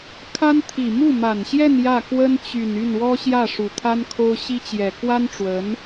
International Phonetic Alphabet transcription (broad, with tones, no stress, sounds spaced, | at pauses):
kʰ a˥ n t̪ʰ i˨˩ m u˥˩ m a˨˩ n ɕ j ɛ˥˧ n j ä˥˩ k w ə˥ n t͡ɕ y˨˩ n y˥˩ n w ɔ˥ ɕ j ä˥˩ ʂ u˨˩ t̪ʰ a˥ n kʰ o˥ ʊ̯ ɕ i˥ t͡ɕ j ɛ˨˩ k w a˥ n ʈ͡ʂ w ə˧˥ n